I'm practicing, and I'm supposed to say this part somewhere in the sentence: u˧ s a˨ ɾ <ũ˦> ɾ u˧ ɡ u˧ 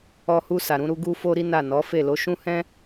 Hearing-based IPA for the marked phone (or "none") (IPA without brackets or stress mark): ũ˧